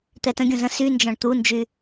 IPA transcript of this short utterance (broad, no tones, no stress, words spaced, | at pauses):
t̪ɛtə̃ɡʲũz ə̃ synd͡ʒɔ̃ɳ t̪und͡ʒy